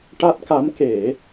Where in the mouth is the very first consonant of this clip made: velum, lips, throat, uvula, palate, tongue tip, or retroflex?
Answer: retroflex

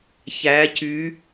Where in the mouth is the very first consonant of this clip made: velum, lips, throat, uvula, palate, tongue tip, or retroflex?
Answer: palate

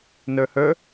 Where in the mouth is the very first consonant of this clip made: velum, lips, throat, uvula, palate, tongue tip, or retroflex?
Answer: tongue tip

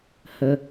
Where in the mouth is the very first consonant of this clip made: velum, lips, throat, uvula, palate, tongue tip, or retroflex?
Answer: throat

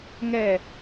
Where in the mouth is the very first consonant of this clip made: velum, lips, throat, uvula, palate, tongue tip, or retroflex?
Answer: velum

